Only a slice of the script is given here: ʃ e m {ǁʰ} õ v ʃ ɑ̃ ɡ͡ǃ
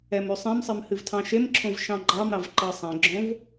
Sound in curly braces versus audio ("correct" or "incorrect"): correct